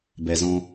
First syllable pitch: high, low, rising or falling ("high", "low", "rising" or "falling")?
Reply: low